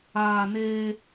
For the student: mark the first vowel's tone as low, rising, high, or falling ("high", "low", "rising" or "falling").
low